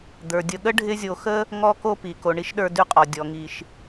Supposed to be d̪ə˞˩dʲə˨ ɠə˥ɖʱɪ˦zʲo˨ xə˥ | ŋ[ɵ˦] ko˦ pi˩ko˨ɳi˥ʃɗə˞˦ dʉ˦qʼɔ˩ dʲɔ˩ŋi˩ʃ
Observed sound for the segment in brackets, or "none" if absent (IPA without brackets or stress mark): ɔ˦